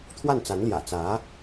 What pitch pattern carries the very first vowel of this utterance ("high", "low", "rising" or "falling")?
falling